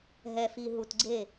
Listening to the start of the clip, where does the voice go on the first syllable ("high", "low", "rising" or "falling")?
low